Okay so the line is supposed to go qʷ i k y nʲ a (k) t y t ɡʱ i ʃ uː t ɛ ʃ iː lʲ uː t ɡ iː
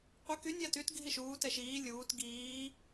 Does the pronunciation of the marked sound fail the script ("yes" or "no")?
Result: yes